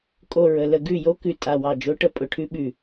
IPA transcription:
kʼ o˨˩ ɹ ə˨˩ l ə˦˨ ɡ ʉ˦˨ j o˧˥ k ʉ˨˩ tʼ a˨˩ w ɑ˦˨ d͡ʒ o˧˥ ʈ ə˧˥ pʼ ʊ˨˩ ʈʰ ʉ˧˥ ɓ ʉ˨˩

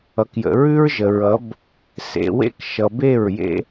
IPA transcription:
ʌ˨ k j ə̰˨ ɹ ʉ˦ ɹ ʒ ə˨ ɹ ʌ˨˦ b | s ḛ˨ w ḛ˦ k ʃ ʌ˨ b e˦˨ ɹ j ḛ˦

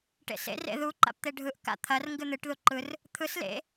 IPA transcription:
ʈ ḛ s ḛ r ḛ ð u ǃ a̰ p t̪ e ɖʱ ɯ ʔ k a̰ t̪ʰ ɐ r ŋ ɡ ɨ n̪ ɨ ʈ ð u ǃ ɯ r | t̪ʰ ɯ s l ḛ

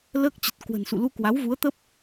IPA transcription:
l əː˦˥ k̚ t͡ɕ ə˨˩ t̚ k w ə̤˨˩ n s ṵ˧˨ l u˧ k w a˨˦ w v u˨˦ ə̯ t̪ ə˦˥ p̚

